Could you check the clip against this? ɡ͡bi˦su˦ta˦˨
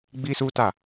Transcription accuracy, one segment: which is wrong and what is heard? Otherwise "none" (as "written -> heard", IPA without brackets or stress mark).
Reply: none